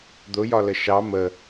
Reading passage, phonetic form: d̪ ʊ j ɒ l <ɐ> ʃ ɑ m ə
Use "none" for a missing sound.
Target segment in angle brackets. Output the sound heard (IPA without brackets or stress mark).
ə